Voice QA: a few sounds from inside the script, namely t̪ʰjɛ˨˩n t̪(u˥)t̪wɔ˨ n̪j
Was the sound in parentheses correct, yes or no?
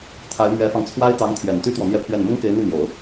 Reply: no